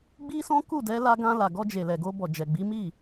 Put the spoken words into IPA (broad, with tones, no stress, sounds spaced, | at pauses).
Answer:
ɡ͡b i˦ s ɔ̃˦ k u˦˨ d ɛ˨˦ l a˧ ɡ ã˧ l a˨ ɡ ɔ˧ d͡ʒ e˨ l ɛ˨ ɡ o˧ b ɔ˨ d͡ʒ ɛ˨ ɡ͡b i˨˦ m i˦˨